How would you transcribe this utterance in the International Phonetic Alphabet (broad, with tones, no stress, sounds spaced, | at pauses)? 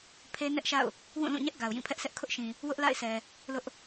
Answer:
pʰ e˦ n ɛ˦ ʔ ʃ a̰˦˨ ʊ̯ | w ũ˦˨ l ũ˦˨ ɲ ɛ˦ ʔ ɡ a˨ ʊ̯ j ĩ˦˨ pʰ ɛ˦ ʔ s ɛ˦ ʔ kʰ ʊ˦ ʔ ʃ ĩ˨ | w ʊ˦ ʔ l a̰˦˨ ɪ̯ s ɛ˨ | l ʊ˦ ʔ